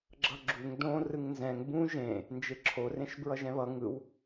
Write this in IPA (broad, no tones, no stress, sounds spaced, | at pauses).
ɡ͡ǁ ʌ ɡ͡ǁ u ŋ d õ r ɯ ŋ n z ɛ̃ ŋ b ũ ʒ ẽ | n d͡ʒ e ǁʰ o r ẽ ʃ b ɹ ʌ ʒ ɛ̃ β ʌ ŋ ɯ w